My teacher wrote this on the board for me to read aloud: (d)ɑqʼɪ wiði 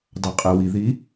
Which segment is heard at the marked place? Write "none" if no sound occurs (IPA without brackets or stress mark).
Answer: d